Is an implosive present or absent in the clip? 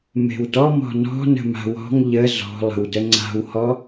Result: absent